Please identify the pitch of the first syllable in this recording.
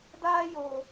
high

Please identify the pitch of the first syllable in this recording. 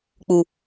low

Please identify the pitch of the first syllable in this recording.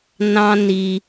high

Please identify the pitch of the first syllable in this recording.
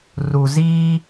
low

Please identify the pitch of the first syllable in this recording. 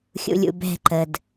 low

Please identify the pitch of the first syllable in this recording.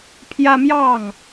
high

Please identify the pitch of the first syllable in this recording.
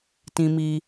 high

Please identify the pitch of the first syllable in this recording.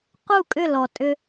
falling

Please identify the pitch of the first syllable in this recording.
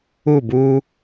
falling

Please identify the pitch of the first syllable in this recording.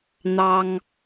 high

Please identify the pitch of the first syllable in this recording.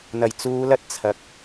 low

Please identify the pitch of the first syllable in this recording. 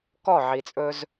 falling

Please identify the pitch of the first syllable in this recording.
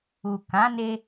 low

